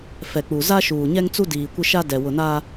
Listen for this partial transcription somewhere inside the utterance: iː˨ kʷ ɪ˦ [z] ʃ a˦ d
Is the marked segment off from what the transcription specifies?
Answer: yes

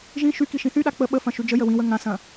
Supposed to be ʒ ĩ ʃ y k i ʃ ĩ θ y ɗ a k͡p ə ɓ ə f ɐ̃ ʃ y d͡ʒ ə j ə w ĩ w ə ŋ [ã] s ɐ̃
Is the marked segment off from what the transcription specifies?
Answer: no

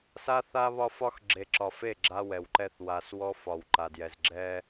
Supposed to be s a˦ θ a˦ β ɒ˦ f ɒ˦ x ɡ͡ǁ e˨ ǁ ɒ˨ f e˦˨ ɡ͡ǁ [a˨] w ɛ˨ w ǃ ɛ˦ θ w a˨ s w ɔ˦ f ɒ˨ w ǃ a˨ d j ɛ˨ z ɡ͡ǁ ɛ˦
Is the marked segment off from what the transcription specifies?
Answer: yes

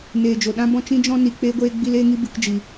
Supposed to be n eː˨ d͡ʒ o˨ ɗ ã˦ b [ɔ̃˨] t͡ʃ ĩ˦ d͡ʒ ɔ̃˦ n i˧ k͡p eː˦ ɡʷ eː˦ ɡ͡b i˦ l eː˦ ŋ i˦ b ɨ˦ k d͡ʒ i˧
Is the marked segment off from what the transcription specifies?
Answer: yes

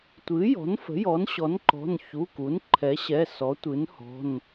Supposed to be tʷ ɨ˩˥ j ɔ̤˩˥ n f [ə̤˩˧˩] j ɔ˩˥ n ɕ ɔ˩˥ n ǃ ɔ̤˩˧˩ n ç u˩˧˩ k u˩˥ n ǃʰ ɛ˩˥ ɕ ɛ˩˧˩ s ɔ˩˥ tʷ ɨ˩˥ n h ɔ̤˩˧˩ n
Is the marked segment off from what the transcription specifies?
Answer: yes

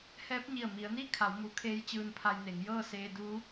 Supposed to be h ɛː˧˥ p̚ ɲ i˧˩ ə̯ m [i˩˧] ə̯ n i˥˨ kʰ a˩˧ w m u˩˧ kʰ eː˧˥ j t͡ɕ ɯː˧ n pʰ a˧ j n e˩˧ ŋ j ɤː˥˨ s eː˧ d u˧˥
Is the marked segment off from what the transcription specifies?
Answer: no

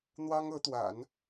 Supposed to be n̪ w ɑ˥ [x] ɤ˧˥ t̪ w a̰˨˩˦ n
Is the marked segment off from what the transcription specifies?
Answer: yes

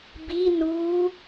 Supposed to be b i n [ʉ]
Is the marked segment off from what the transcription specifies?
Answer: yes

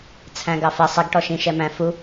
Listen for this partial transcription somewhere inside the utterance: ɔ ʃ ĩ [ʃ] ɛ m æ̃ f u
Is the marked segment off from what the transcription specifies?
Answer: no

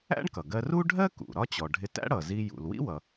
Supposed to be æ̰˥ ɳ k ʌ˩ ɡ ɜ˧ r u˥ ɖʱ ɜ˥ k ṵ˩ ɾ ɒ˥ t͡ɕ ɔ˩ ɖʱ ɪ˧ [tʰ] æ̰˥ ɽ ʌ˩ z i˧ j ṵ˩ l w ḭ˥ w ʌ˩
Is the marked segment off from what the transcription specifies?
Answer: yes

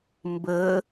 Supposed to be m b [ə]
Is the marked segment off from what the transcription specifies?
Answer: no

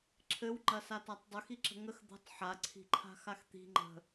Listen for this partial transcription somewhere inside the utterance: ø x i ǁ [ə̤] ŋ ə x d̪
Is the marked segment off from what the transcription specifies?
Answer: no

